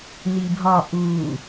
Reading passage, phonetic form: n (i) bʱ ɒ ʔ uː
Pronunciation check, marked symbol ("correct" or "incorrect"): correct